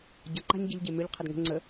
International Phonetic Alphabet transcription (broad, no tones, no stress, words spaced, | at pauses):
ɟʌ ǃa̤ɲɟəʎɟe mʏʎ qʰədŋə̤ ŋ͡ǀə